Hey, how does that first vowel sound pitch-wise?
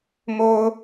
high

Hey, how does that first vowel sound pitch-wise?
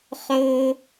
high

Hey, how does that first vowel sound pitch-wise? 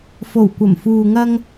low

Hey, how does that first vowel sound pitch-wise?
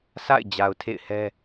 falling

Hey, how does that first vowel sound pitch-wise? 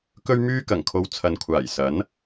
high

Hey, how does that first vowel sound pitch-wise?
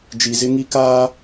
low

